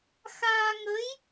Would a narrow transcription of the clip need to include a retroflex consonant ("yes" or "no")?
no